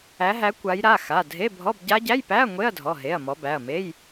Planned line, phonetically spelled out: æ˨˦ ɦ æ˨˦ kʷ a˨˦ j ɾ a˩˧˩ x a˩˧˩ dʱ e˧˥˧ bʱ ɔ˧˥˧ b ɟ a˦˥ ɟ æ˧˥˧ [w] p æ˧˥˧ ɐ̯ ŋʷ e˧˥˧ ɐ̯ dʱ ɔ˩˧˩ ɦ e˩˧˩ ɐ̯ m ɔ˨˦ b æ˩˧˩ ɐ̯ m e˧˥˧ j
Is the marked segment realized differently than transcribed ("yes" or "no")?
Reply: yes